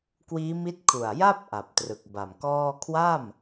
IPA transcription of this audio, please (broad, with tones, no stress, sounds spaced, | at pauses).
k w iː˦˥ m i˦˥ t̚ kʰ u˨˩ a̯ j a˥˩ p̚ ʔ a˨˩ p̚ t r ɯ˨˩ k̚ b a˨˩ m k ɔː˥˩ kʰ w a˥˩ m